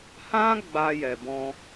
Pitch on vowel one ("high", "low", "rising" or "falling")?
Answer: high